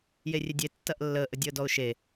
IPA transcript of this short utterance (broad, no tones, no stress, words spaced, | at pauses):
jerʲedʲe tːɐʔlːəːʔ ədʲəːdɔʊ̯ʃe